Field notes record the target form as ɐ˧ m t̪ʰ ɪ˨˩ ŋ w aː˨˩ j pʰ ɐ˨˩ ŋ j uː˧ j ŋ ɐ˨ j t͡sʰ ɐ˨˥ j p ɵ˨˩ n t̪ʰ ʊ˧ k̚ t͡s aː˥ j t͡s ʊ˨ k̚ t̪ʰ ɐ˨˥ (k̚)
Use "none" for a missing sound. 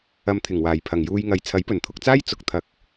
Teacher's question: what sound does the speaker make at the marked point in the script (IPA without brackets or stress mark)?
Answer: k̚